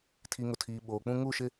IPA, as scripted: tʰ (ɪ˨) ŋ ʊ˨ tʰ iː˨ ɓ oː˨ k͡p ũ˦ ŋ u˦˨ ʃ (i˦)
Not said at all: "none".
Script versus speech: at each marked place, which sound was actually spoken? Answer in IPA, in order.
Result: i˨, ɪ˦

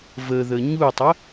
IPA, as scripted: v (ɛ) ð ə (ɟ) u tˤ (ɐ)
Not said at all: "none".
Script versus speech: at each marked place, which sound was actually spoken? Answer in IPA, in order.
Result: ə, ɲ, ə

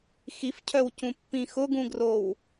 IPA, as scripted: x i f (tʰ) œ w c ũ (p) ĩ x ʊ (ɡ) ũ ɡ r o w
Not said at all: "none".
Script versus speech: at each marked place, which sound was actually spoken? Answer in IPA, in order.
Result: cʰ, pː, ɡ

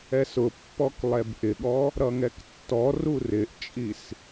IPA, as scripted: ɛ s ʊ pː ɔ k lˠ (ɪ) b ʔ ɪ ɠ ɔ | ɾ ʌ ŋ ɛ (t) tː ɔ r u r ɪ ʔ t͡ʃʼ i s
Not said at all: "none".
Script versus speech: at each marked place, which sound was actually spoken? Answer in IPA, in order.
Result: ɛ, k

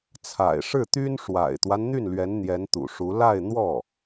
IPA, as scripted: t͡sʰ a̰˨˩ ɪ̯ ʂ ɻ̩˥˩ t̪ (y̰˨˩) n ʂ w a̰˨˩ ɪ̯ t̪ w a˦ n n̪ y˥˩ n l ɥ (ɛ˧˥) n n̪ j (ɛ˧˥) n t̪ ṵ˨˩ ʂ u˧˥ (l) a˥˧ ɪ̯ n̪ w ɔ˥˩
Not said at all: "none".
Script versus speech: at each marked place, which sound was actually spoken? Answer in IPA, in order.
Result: y˥, ɛ˧˥, ɛ˧˥, l

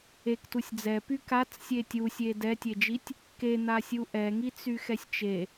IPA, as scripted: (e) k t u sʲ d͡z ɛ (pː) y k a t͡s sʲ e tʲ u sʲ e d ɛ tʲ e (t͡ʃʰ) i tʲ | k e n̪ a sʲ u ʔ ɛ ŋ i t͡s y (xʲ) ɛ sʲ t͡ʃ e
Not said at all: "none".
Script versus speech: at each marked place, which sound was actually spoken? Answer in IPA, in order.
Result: e, p, d͡ʒ, x

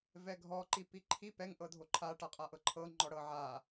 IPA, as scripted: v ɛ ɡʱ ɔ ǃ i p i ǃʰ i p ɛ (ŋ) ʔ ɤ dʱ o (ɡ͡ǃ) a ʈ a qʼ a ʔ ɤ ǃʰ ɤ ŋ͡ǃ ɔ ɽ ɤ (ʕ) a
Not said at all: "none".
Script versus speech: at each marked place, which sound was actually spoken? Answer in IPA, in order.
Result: ŋ, ǃʰ, ʕ

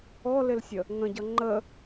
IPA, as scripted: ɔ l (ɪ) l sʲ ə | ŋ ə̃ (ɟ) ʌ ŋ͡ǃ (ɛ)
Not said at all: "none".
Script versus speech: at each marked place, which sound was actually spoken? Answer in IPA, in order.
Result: ɪ, ɟ, ə

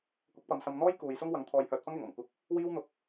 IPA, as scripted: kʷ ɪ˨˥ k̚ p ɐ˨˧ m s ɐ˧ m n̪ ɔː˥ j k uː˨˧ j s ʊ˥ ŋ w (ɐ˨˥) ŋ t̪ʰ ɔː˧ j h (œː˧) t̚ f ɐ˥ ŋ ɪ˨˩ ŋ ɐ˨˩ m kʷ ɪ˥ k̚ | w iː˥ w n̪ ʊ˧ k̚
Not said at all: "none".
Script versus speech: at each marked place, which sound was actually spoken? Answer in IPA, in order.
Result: ɐ˨˥, œː˧

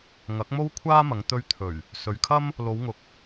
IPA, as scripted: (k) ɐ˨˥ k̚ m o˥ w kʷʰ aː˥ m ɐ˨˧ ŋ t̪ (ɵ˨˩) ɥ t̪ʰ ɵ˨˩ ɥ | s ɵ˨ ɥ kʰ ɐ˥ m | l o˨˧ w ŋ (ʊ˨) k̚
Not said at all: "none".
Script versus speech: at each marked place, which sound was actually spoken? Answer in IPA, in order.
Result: ŋ, ɵ˧, ʊ˨

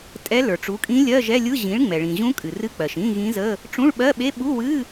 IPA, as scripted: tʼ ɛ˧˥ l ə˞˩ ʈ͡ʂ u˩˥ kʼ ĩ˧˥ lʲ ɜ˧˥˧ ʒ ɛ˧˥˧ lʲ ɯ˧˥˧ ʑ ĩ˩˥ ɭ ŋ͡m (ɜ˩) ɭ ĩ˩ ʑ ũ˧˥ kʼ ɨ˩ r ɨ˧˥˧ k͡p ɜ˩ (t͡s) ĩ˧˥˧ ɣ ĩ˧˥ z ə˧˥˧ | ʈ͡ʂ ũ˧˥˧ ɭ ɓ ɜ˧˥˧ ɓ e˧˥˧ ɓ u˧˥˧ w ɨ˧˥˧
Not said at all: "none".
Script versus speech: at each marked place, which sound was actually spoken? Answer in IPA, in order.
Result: ɛ˩, ʃ

